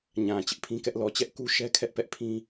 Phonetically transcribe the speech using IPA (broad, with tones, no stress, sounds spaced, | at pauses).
ɲ ã˨ t͡ɕ ɪ˦ ʔ pʰ ĩ˦ k ɛ˦ ʔ l ɔ˨ t͡ɕ ɛ˦ ʔ k u˦ ʃ ɛ˦ kʰ ɛ˦ ʔ p ɛ˦ ʔ pʰ ĩ˦